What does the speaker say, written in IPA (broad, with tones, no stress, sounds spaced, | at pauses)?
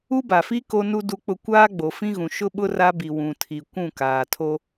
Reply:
u˦ b a˨ f i˦ k o˦ n u˦ d u˦ k͡p ʊ˦ kʷ aː˦ ɡ͡b o˨ f ĩ˦ ɣ ũ˨ ʃ ʊ˦ ɓ ʊ˦ r a˦ b i˨ w ũ˨ tʰ i˨ kʷ ũ˦˨ k aː˨ tʰ o˦